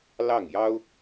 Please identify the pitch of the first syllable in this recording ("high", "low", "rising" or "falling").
falling